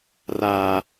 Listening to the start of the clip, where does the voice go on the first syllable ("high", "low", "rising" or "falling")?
high